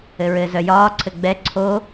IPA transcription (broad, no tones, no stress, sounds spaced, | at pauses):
ɘ ɹ ɘ z œ j ɒː ǀʰ ɘ ɡ͡b ɛ ǀʰ o